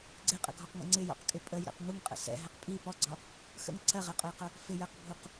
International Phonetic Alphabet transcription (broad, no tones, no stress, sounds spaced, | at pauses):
ɡ͡ǀ ɪ qʼ ə̰ ɡʱ ɔ q ŋ ə̰ ŋ͡ǀ ɪ j ɔ̰ q kʼ ɪ pʼ ə j ɾ ɛ̰ q ŋ u ŋ qʼ ə̰ s ɛ̰ ɦ ɛ q pʼ i p ɔ ɡ͡ǀ ɒ | x ə̰ ŋ ǀʰ ɜ ʁ ɛ qʼ ʊ j q ʊ | f ɪ j ɜ q bʱ u q